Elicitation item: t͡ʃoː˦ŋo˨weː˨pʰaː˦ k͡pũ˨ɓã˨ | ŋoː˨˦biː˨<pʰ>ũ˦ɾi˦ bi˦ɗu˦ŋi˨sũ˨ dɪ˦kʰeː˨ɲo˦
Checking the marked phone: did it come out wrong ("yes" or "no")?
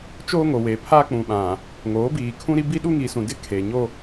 yes